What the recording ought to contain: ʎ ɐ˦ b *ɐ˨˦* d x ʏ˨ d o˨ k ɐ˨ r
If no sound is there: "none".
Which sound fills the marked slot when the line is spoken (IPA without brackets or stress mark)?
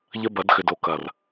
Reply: ɐ˨˦